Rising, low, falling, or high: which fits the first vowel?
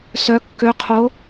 rising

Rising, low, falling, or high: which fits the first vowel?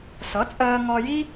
rising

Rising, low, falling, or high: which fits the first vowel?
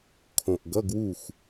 low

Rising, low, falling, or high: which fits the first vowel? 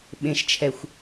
high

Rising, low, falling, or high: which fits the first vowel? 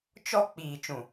high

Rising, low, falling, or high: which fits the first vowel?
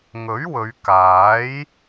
rising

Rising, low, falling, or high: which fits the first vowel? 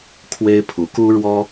high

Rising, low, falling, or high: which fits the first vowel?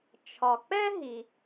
low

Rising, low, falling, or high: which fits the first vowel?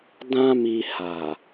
high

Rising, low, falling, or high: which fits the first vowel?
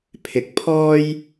rising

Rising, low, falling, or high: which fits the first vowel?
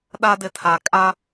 high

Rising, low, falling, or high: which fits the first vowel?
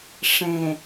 low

